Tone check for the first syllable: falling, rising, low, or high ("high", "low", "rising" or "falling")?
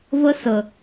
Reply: high